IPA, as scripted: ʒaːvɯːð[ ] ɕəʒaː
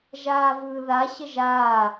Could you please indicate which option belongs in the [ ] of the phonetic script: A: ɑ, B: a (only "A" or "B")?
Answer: B